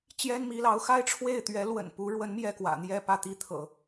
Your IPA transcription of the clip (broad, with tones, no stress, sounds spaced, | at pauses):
t͡ɕ j ɛ˥ n m i˧˥ l ɑ˧˥ ʊ̯ x a˥ ɪ̯ ʈ͡ʂʰ w e˥˩ ɪ̯ t̪ ɥ ɛ˧˥ l w ə̰˨˩ n p u˧˥ ɻ w ə˧˥ n m j ɛ˥˩ k w ä̰˨˩ n̪ j ɛ˥˧ p ä˥˧ t̪ i˥˩ t̪ʰ ɤ̰˨˩˦